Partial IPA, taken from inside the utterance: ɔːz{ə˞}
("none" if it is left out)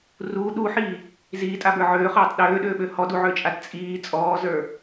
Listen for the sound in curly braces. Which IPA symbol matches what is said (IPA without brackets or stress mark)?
ə˞